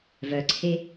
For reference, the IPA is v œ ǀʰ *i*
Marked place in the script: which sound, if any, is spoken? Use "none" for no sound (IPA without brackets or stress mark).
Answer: e